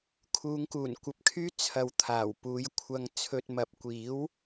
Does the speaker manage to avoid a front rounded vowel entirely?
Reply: no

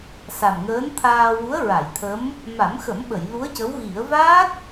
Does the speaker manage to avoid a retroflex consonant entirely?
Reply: yes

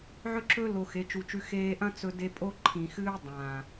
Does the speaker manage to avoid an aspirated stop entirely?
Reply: no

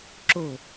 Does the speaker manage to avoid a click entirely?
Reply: no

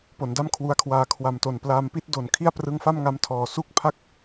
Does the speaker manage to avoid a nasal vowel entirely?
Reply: yes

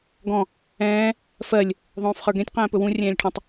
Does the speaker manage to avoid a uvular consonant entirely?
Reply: no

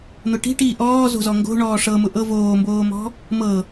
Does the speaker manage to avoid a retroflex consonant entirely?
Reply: no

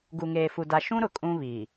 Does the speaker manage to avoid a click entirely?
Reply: yes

